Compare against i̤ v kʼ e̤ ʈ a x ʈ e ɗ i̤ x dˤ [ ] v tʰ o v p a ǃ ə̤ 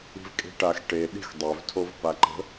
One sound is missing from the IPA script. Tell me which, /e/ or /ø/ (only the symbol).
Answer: ø